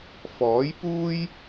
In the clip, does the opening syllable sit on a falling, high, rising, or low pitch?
rising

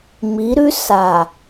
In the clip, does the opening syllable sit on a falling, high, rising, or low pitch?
rising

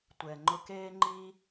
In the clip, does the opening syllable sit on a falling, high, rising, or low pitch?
low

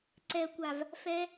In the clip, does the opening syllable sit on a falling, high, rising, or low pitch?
low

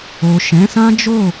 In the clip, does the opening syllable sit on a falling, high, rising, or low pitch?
low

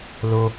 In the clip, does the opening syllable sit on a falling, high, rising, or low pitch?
low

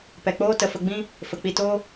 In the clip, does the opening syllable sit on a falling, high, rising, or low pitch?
low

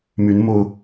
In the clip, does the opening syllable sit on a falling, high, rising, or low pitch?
rising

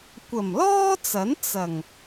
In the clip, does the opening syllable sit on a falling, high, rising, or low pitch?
low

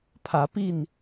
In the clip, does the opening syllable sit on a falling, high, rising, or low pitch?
rising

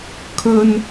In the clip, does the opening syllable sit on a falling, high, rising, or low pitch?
high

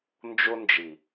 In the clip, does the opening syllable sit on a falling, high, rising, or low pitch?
high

